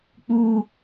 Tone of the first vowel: high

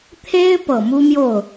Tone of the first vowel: high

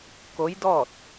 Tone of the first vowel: rising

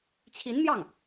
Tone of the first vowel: rising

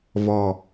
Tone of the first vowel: low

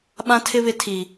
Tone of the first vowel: high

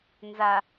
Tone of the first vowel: low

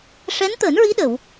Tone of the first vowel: rising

